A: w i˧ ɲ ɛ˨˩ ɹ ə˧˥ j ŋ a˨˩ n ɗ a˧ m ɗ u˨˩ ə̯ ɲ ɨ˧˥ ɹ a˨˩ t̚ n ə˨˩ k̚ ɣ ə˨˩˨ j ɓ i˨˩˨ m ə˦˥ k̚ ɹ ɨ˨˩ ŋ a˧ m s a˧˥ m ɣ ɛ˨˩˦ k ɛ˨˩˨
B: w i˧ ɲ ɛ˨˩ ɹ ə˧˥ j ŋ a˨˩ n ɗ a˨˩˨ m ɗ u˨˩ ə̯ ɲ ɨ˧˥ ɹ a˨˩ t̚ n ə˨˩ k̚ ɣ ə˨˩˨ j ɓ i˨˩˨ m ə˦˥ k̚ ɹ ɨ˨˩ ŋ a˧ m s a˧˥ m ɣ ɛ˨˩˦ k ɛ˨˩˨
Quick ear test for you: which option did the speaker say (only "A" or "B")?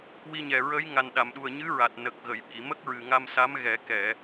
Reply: B